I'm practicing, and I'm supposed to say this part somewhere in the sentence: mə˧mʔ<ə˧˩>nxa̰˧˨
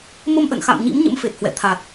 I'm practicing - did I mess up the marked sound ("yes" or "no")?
yes